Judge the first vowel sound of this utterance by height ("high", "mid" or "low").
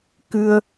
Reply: high